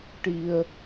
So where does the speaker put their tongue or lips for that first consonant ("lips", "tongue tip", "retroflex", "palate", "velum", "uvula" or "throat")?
retroflex